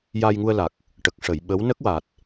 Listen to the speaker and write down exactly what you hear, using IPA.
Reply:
j a˧ j ŋ u˧ ə̯ l a˨˩ k̚ | ʈ ə˨˩ k̚ ʂ ə˨˩˨ j ɓ ə˧˥ w n ə˦˥ k̚ w a˨˩ t̚

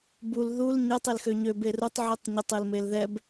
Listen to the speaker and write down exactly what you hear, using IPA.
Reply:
b u l ð u l ɲ ɛ tˤ e l x ø ɲ ø b e r u tˤ ʕ i tˤ ɲ ə tˤ e l m e l ð ɛ b

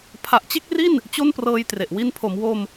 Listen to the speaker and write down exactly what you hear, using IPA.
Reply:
pʰ a˨˩ ʔ t͡ɕ e˥˩ k̚ r i˥˩ n | t͡ɕ o˥˩ n p r ɤː˧ j t r e˨˩ ʔ w i˧ n pʰ o˩˦ m w o˧ m

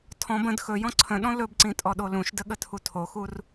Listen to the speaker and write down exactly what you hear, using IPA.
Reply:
tʰ ɔ̃ b ə̃ d x ɵ j ɔ̃ ǀʰ ə̃ ɗ ɔ̃ l ɵ b ǀ ĩ tʼ ɔ ɗ o l ũ ʃ d ə ɠ ə tʰ u tʰ o x u r

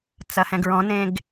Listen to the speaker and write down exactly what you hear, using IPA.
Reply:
t͡s ɐ h ɛ̃ ɡ ɹ ɔ̃ n ẽ ɡ

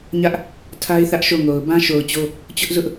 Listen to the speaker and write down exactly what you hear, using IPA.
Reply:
ɲ ä˦ ʔ | tʰ a˦ ɪ̯ θ ä˦ ʔ ʃ o˦˨ ŋ o˨ ʊ̯ b ã˦ ʃ o˨ ʊ̯ t͡ɕ o˦ | t͡ɕ ʊ˦ ʔ z ʊ˦ ʔ

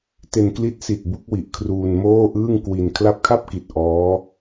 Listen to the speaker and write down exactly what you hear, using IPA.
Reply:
t e˧ n k l i˦˥ t̚ s i˨˩ t̚ b u˦˥ k̚ w i˨˩ ʔ kʰ r uː˧ n m oː˥˩ ʔ ɯː˥˩ ŋ k w i˧ n kʰ l a˦˥ p̚ kʰ a˥˩ p̚ k i˨˩ t̚ ʔ ɔː˦˥

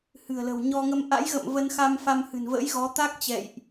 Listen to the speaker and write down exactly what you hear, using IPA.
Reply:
h ɨ̤˨˩ ə̯ l ə̤˨˩ w ɲ ɔ˧ ŋ ə˧ m ʔ a̰˧˥ j ɣ ə̰˧˨ m v ə˧ n x a˧ m f a˧ m h ɨ̤˨˩ n v ə̰˧˥ j ɣ ɔ˨˦ t̪ a˦˥ k̚ t͡ɕ ɛ̰˧˨ j ʔ

